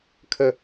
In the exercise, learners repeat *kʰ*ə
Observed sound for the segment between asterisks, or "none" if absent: kʰ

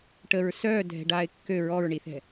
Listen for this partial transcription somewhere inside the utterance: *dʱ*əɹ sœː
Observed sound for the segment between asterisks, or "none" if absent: ʈ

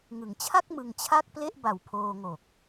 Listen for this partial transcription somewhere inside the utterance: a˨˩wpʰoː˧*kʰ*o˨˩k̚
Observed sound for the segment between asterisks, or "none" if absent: ŋ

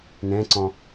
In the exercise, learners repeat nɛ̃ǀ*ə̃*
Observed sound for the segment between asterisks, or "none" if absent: ɔ̃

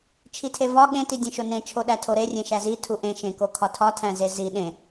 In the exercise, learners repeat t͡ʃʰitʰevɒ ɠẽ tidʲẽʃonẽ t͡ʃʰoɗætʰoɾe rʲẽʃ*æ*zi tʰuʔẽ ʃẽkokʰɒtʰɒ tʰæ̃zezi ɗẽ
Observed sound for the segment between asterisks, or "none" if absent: æ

